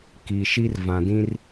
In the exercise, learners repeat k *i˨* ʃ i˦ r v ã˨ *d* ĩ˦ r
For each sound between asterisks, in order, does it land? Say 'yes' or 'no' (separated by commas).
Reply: yes, yes